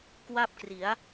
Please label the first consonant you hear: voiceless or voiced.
voiceless